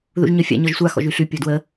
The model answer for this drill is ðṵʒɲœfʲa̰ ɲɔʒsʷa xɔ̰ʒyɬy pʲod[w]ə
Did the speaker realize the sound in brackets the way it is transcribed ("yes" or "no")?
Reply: yes